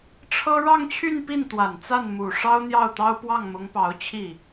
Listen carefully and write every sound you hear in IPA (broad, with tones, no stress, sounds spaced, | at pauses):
ʈ͡ʂʰ ɤ˥ ɻ ɑ˥˧ ŋ t͡ɕʰ y˥˧ n p i˥˩ n t̪ w a˨˩ n t͡s a˥˩ n m u˨˩ ʂ ɑ˥ ʊ̯ n̪ j ɑ˥˩ ʊ̯ t̪ ɑ˥ ʊ̯ p w ɑ˥˩ ŋ m ʊ˧˥ ŋ p ɑ˧˥ ʊ̯ t͡ɕʰ i˥˩